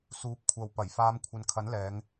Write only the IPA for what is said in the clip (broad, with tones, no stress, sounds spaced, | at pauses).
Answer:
s uː˨˥ p̚ kʷʰ ɐ˨ w p ɐ˨˩ j f aː˨˧ m kʷʰ ɐ˨ n kʰ ɐ˨˥ n l ɛː˨˧ ŋ